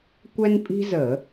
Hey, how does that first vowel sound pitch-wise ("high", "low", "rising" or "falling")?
high